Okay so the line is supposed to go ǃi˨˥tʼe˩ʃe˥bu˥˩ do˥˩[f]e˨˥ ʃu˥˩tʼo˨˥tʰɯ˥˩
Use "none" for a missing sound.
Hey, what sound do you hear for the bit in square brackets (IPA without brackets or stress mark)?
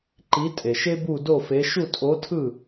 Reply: f